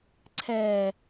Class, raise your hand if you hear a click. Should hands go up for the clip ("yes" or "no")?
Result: yes